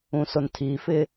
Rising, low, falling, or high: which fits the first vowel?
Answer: low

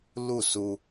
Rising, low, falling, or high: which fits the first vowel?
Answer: falling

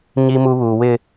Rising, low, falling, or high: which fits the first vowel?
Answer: low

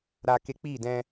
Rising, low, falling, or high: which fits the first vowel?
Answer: high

